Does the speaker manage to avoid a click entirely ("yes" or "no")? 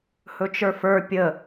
yes